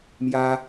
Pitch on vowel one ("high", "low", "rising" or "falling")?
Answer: high